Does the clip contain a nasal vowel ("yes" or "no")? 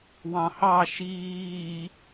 yes